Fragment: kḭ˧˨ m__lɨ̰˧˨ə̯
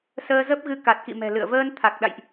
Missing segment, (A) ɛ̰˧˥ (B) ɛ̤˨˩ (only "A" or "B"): B